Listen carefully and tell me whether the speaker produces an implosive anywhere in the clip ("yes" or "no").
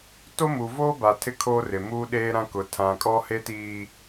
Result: yes